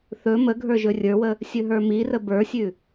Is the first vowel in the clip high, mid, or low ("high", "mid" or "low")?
mid